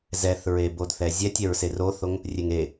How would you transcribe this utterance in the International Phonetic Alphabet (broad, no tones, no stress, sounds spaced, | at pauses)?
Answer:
z ɛ θ ɹ e b o d θ ɛ zʲ ɛ tʲ ɛ ɹ s e r o θ o ŋ | rʲ e ŋ e